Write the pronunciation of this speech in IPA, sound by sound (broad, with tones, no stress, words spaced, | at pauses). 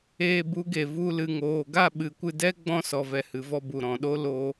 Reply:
eː˧bu˨˦ɡe˨ vu˧ lɨ˨ŋoː˨ɡa˦˨ɓɨ˨ kʷɨ˧dɛ˦ ɡ͡bɔ̃˧sɔ˨vɛ˨ hɨ˨vɔ˧ bu˨ ɾɔ̃˨ɗo˦ lo˧